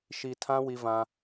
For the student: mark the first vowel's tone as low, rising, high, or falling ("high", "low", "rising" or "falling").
low